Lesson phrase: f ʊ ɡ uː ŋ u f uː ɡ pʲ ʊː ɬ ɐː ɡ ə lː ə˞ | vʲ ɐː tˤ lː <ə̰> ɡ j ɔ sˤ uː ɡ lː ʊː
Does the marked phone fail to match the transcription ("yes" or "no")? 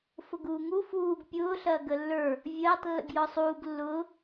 no